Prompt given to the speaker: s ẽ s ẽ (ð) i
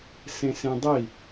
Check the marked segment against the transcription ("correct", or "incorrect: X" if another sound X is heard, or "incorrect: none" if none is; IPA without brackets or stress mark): incorrect: dˤ